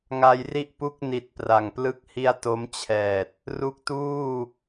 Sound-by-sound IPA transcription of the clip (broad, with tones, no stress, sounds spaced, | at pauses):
ŋ a˧ j r i˥˩ ʔ p u˥˩ k̚ n i˨˩ t̚ p r a˨˩ ŋ p l ɯ˥˩ k̚ h i˥˩ a̯ t o˦˥ m t͡ɕʰ ɛː˨˩ t̚ | r u˦˥ k̚ t uː˥˩